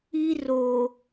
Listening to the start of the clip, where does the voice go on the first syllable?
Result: high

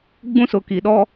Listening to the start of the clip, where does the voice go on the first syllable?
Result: high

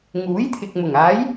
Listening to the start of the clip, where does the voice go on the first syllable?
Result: rising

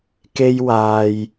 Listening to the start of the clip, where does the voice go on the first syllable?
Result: high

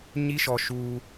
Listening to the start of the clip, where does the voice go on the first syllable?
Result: high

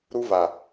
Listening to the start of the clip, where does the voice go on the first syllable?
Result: high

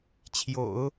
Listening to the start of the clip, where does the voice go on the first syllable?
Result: low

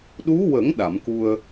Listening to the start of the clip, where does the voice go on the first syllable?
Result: rising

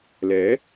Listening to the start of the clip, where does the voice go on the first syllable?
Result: rising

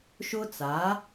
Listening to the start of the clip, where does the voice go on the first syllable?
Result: high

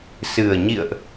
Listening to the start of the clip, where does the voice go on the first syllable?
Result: low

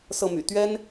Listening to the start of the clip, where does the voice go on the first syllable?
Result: falling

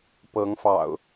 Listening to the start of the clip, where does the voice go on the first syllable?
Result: rising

